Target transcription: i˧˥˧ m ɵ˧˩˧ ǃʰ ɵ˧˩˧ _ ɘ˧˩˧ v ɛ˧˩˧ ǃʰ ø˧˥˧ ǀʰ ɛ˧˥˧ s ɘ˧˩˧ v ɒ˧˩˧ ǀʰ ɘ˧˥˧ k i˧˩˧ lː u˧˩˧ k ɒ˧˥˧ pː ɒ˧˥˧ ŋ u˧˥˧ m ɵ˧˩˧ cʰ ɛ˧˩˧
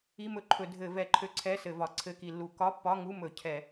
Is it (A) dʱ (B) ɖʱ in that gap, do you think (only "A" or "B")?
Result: A